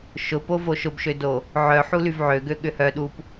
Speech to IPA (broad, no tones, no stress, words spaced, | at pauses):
ʃʊpovo ʃʊbʃødo | ʕœħulyv ʕøɡøɠʏ hœɗup